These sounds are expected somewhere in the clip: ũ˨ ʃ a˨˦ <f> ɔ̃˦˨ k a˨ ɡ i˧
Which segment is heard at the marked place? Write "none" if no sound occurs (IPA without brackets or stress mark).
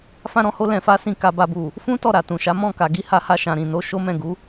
m